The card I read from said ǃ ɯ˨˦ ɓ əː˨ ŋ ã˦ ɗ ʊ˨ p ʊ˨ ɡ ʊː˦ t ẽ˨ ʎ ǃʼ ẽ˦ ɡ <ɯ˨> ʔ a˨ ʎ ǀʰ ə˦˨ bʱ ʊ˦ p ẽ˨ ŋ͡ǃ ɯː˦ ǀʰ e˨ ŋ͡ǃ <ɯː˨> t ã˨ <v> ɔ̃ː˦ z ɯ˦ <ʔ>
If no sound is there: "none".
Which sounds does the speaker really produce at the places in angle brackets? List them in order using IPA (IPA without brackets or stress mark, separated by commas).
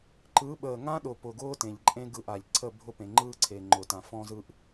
ɯ˦˨, ʊː˨, f, ʔ